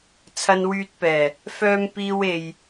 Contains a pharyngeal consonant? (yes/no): no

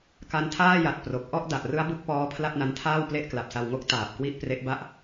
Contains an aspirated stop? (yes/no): yes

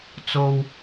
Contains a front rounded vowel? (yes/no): no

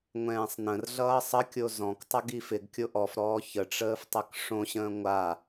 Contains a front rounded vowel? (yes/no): no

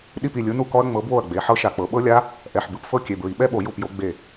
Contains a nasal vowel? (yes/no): no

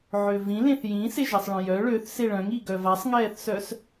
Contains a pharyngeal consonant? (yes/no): yes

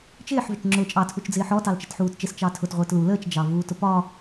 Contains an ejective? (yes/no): yes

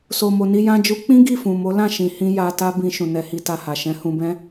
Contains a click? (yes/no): no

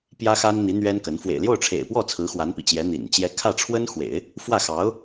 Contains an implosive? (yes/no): no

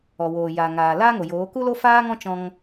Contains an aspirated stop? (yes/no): no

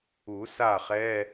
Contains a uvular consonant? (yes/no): yes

